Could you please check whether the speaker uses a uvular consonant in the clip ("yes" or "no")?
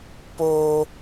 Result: no